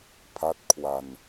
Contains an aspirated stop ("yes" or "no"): yes